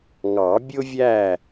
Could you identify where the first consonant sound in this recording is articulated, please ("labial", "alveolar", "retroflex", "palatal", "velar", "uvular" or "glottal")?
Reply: velar